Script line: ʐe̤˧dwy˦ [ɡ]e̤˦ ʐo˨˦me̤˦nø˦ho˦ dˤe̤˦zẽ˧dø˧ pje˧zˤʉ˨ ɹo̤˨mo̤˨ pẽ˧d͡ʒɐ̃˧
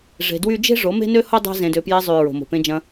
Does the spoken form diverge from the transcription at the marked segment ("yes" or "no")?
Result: yes